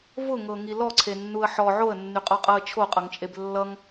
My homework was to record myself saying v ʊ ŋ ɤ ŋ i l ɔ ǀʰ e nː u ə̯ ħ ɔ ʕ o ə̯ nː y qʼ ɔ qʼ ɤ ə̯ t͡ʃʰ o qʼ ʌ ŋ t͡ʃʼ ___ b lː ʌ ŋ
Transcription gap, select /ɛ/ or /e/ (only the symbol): e